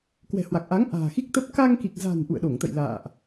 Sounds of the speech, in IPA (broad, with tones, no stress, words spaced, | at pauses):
kwɛ̤˨˩hwa˨˩k̚ʔa˨˦ŋ ʔa̤ː˨˩xi˦˥k̚t̪ə˦˥p̚ ka˧ŋki˨˩k̚za̤˨˩n ʔṵ˧˨ə̯ɗo˧˩ŋt̪ə̰˧˨j la̰ː˧˨ʔ